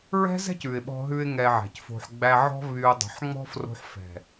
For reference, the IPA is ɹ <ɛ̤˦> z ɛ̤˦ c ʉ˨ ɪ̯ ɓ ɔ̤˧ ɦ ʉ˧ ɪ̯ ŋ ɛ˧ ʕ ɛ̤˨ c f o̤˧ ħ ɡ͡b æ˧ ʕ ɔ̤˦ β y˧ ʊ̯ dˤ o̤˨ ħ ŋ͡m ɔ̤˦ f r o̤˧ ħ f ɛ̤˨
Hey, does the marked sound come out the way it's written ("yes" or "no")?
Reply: yes